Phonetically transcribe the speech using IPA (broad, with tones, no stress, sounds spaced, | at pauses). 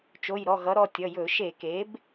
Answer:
t͡ʃ o˩˧˩ j ɾ ɔ˩˧˩ ɣ ʌ˩˥ ɾ ɔ˩˧˩ tʲ ʌ˩˧˩ j ɵ˧˩˧ ʃ e˧˩˧ k e˩˥ b